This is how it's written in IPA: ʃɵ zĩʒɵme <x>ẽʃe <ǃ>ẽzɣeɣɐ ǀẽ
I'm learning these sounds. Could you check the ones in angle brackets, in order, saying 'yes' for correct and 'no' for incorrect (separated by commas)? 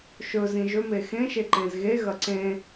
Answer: yes, yes